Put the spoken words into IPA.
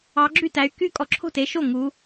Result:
ɑ˨˦ ɡ͡ǁ y˥˩ t æ˨˦ y̯ k y˥˩ kʼ ɔ˨˦ ǁʰ o̤˥˩ t e˨˦ ʃ o˥˩ ŋ u˨˦

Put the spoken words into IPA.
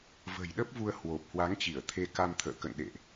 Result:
v ə̤˨˩ j ɗ ə˦˥ p̚ v u˧ ə̯ h w o˨˩ p̚ h w a˨˦ ŋ t͡ɕ i˧˩ ə̯ t̪ʰ e˧ k a˧ m t̪ʰ ə̰ː˧˨ k ə̰˧˨ n ɗ ḛ˧˨ ʔ

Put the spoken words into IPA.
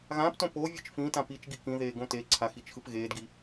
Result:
ɣ ãː p t õ p o vʲ ɯ t͡ʃ f ĩ t ã p i t͡ʃ ɡ i k ĩ ð eː ɡ õ t e ǀʰ a x i t͡ʃ x ɯ p ɣ eː d ɡ i

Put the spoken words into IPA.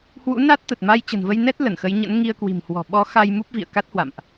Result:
h w ṵ˧˥ n a˦˥ t̚ t̪ ə˨˩ t̚ m a˧ j t͡ɕ ə̤˨˩ n v ə˧ j n ɛ˦˥ t̚ l ə˧˩ n x ə˨˦ j ɲ ə̰˧˥ n ŋ i˧ ə̯ k w i̤˨˩ m h w ɔ̤˨˩ ɓ ɔ˨˦ x a˧ j m u˦˥ p̚ v ḭ˧˨ ə̯ k a˦˥ t̚ h w a̰˧˨ m ʔ

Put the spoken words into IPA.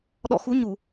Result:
ɗ ɔ̰˧˨ x u˨˦ ɲ u˧˩˨

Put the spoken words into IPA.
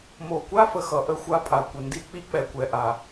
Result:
m o˨ kʷ a˦ f ə˨ x ʌ˨ ʔ ə˦˨ xʷ a˦˨ pʼ a˨ kʷ ə˨ n d i˦ k͡p i˦ k͡p ɛ˨ kʷ ɛ˨ ʔ a˨

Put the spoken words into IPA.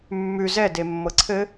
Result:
mː ʉ z ɛ d e mː ɤ ǀʰ ɘ

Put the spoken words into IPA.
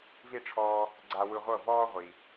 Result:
v i˥˩ ʈ͡ʂʰ ɔː˧ | ɡ͡ǀ a˧ w ɯ˧ ʁʷ ɤ˥˩ v ɔː˥ ʁʷ i˩

